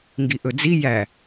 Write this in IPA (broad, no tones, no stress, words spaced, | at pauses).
ŋɡiʔɵd͡zi jæ